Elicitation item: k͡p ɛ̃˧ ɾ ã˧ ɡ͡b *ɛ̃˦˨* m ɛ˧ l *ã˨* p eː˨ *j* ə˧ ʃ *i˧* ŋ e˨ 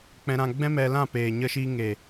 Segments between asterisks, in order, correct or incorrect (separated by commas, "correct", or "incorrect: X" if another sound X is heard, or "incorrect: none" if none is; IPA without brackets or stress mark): incorrect: ɛ̃˦, incorrect: ã˦˨, incorrect: ɲ, correct